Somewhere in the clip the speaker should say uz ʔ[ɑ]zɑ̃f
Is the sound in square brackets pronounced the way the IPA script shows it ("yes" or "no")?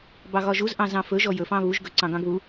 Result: no